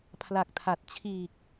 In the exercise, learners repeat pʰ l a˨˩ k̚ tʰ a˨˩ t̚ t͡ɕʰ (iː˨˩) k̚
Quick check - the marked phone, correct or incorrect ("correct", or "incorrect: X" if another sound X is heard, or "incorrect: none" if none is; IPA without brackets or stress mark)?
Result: correct